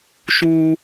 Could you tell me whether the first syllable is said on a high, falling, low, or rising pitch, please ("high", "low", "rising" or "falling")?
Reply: high